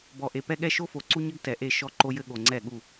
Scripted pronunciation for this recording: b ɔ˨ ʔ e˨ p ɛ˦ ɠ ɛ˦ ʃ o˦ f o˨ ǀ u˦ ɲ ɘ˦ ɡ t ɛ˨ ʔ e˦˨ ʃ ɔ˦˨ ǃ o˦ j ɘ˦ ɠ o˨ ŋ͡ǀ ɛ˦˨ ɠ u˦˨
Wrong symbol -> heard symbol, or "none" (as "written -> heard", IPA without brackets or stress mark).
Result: none